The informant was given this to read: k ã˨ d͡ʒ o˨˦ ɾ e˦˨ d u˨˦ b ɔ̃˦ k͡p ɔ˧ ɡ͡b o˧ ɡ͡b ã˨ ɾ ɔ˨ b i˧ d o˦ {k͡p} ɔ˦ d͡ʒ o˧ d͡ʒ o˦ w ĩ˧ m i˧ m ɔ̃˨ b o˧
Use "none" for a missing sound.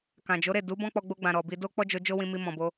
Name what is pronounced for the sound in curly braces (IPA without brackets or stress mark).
k͡p